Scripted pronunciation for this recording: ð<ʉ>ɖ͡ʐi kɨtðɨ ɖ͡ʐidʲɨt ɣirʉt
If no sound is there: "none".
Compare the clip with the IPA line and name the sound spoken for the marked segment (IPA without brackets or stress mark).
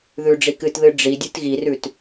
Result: ʉ